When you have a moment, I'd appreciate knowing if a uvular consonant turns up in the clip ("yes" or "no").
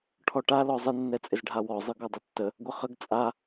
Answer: yes